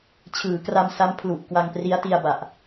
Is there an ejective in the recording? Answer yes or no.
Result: no